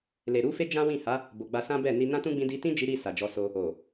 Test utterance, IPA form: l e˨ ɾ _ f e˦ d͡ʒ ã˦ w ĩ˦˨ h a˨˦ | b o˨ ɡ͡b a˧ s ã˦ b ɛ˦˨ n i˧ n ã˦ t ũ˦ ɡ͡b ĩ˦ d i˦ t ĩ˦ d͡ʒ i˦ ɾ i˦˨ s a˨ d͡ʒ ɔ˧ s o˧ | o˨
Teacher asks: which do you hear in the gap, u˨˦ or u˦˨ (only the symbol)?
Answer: u˨˦